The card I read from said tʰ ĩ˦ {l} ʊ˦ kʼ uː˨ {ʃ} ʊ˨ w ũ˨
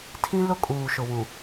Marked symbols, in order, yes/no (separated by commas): yes, yes